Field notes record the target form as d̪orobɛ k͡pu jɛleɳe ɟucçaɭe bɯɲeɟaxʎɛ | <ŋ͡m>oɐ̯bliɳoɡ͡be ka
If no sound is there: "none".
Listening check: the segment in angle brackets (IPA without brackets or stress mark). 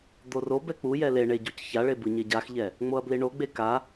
ŋ͡m